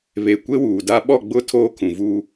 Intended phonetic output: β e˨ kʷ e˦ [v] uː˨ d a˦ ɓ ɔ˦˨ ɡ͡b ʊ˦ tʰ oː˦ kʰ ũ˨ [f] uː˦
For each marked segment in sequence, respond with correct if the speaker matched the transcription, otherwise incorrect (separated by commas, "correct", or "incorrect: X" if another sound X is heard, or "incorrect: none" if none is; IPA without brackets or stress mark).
incorrect: w, incorrect: v